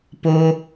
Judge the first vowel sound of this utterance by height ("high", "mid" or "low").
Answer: mid